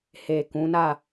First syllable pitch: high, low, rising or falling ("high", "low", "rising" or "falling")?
low